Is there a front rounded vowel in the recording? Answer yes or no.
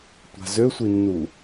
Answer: yes